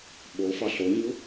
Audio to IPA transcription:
ɓ o f ɒ ɬ o ɲ u

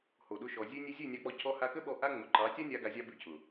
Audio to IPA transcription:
h o˨ ɗ ʊ˧ ʃ ɔ˨ zʲ ʉ˧ nʲ ʉ˧ zʲ ʉ˦˨ nʲ ɑ˧ k͡p ɔ˧ cʰ ɔ˧ h a˧ k ə˦ ɓ ɔ˧ ʔ a˦ ŋ͡m ʊ˨ ǃ ɑ˨˦ tʲ a˦ nʲ a˧ ɡ a˧ zʲ ɑ˦ b ʉ˧ cʰ ʊ˨

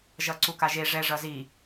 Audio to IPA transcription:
ʒ ʌ ǀ u k a ʒ e ʐ ɛ ʐ ʌ z i

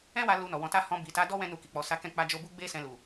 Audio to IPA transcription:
ɛ̃˦ w a˧ l u˧ n ɔ˨ w ɔ̃˧ t a˦ h ɔ̃˧ b i˨ t a˨˦ d ɔ˦ w ɛ̃˦ n u˧ k i˨ k͡p ɔ˨ s a˨˦ k ɛ̃˧ k͡p a˧ d͡ʒ o˧ b u˦ ɡ͡b e˦ s ɛ̃˧ l u˨

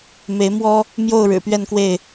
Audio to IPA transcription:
m e˨˦ ɪ̯ m w ɔ˦ | m j o˥˨ ʊ̯ ɻ ɻ̩˨˩ p ɥ ɛ˥˨ n k w e˥˨ ɪ̯

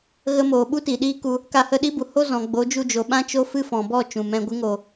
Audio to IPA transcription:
ɣ ə˦ m oː˨ ɓ u˦ t i˨ ɗ iː˦ k u˧ | k a˧ h ə˦˨ ɗ i˦ b u˨ h o˦ z ɔ̃˨ ɡ͡b o˨˦ d͡ʒ u˧ d͡ʒ o˨ ɓ ã˦ t͡ʃ o˦ f ɨ˦ f ɔ̃˨ b ɔ˦˨ t͡ʃ ũ˨ m ɛ̃˧ ɡʷ ɨ˨˦ ŋ oː˨

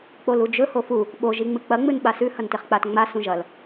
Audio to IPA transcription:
k͡p o l u d͡ʒ ɵ h o f u | ɓ o ʒ i ŋ͡m ɨ k͡p ɐ ŋ͡m ɨ n ɓ a s ʉ h ɐ n t e χ k͡p a t ŋ͡m a s ũ ʒ ɐ l

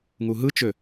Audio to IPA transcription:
ŋ u ɦ ɯ t͡ʃ ø

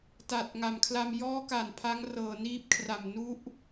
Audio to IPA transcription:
t a˨˩ t̚ ŋ a˨˩ m kʰ l a˧ m j ɔː˦˥ k a˨˩ n pʰ a˦˥ ŋ r ɤː˨˩ n iː˦˥ p̚ kʰ r a˨˩ m n u˦˥ ʔ

